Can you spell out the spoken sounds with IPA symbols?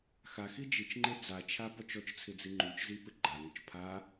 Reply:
xaxi d͡ʒit͡ʃŋ͡ǃe d͡zat͡ʃʰa pɔt͡ʃɔt͡ʃt͡sʰɪ d͡ziŋ͡ǃut͡ʃzi pɪɡ͡ǃaŋʊt͡ʃ pʰa

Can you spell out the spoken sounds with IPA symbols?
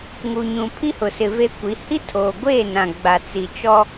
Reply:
ŋu˨ɲũ˨ pʰi˦hʊ˨sɪ˨ ve˦kʷi˨˦ hi˦tʰoː˨ɡʷeː˦˨ nã˨ɡ͡ba˨t͡si˨t͡ʃɔ˦

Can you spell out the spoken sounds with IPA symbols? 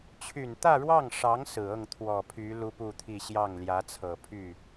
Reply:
t͡ɕʰy˨˩nt̪ä˥˧ɻwɑ˥˩ŋʂɑ˧˥ŋ sɹ̩˨˩ ɤ˥˩ŋ t̪ʰwɔ˨˩pʰy˧˥ lu˥pu˥˧t̪ʰi˥˧ ɕjɑ˥˩ŋljä˧˥t͡sʰɤ˨˩ pʰy˥˩

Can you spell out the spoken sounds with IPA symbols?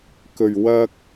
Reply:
kɵ˨˩ɥwɐ˧k̚

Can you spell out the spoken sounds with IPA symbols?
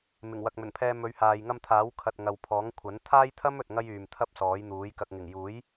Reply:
mɪ˨˩ŋwɐ˨k̚mɵ˨˩npʰɛː˧ mɵ˨˧ɥhaː˨j ŋɐ˧mt̪ʰaː˨˥wkʰɐ˨t̚ ŋɐ˨wpʰɔː˨˥ŋkʷʰɐ˨˥n t̪ʰaː˥jt̪ʰɐ˥m ɵ˨t̚ŋɐ˥jyː˨m t̪ʰɐ˥p̚sɔː˨˥jn̪uː˨˥j kɐ˨k̚ŋɪ˨˩ŋjuː˨˥j

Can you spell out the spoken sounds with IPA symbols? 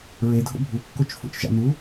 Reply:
ɹedʱo̰ bʱukːot͡ʃ fo̰t͡ʃʒɑ̰n̪u

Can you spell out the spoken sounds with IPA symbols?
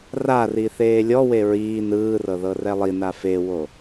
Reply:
rari θeːlʲɔwe ɹiː nɯːrɤ ðɤrɛlˠina fewo

